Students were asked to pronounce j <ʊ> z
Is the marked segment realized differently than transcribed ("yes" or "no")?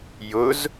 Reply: no